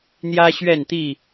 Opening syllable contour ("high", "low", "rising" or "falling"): high